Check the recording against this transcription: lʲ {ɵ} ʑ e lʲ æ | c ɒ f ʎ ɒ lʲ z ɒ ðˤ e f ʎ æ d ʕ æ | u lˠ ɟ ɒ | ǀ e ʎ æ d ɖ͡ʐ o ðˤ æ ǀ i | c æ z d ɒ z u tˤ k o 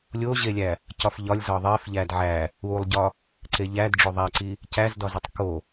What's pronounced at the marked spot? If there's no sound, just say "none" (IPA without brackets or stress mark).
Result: o